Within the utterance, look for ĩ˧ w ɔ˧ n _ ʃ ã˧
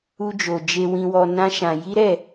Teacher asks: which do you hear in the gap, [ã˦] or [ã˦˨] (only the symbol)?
ã˦